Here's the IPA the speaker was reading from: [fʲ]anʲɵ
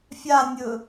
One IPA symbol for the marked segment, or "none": fʲ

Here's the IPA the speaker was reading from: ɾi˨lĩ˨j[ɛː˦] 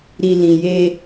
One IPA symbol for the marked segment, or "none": eː˦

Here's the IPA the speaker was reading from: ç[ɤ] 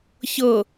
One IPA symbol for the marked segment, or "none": ɤ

